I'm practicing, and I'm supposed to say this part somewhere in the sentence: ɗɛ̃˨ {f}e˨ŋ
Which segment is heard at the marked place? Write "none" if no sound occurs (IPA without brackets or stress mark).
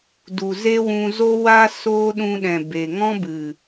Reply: b